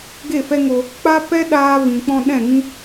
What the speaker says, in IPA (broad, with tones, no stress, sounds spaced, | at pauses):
ɡ e˦˨ f ɛ˦ ŋ o˧ | k͡p a˦ p ɛ˦ ɗ aː˦ v ĩ˨ k͡p ɔ̃˧ ɗ ɛ̃˦˨ ŋ ĩ˦